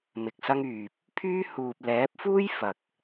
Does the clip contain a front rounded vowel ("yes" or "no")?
yes